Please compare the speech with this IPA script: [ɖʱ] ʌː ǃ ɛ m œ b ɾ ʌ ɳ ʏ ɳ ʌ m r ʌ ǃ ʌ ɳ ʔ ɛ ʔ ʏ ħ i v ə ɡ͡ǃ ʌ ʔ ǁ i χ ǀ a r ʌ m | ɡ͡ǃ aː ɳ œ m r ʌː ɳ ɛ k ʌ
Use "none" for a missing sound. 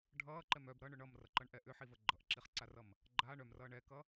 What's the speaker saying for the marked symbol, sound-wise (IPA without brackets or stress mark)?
ɖʱ